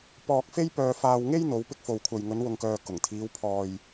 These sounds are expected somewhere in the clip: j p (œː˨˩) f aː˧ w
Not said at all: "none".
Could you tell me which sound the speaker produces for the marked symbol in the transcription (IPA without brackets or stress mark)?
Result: œː˧